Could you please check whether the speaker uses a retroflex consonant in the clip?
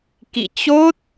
no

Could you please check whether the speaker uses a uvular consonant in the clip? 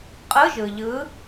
yes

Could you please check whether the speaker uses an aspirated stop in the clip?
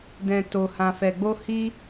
no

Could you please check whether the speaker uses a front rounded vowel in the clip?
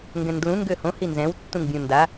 yes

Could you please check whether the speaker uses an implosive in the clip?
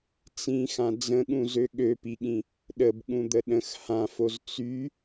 yes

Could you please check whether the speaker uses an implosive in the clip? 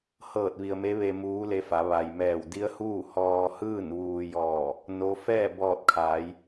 no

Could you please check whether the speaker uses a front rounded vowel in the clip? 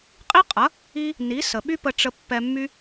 yes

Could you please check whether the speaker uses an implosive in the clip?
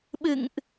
yes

